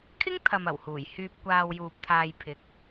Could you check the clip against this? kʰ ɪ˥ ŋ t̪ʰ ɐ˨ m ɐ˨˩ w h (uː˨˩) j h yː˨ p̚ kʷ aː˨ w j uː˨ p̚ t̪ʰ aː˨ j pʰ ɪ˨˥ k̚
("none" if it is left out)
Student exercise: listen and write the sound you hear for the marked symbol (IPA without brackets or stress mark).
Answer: uː˨˩